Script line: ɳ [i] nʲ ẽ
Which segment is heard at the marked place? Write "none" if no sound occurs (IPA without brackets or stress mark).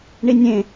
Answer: i